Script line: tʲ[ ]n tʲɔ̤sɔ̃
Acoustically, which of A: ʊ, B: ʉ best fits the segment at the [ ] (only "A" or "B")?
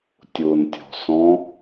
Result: A